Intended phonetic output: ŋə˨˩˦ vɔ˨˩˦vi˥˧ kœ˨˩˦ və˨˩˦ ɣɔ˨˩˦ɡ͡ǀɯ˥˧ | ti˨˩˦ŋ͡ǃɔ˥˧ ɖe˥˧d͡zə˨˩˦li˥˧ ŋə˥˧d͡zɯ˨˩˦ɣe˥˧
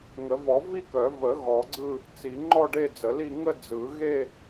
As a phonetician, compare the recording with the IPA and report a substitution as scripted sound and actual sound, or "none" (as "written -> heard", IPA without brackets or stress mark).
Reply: t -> t͡s